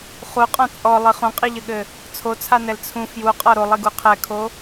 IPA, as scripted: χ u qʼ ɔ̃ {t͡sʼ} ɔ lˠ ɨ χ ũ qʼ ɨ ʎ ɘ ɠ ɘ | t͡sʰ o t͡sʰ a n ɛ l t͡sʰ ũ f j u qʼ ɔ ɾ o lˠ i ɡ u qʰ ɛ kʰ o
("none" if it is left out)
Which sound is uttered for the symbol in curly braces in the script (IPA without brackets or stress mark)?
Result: t͡sʼ